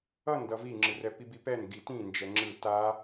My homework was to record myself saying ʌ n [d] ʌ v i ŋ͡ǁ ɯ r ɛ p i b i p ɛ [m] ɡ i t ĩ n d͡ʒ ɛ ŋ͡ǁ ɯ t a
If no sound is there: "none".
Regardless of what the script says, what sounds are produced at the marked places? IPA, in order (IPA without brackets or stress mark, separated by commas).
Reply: d, n